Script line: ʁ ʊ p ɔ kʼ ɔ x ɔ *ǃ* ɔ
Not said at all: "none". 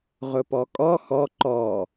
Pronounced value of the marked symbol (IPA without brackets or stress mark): ǃ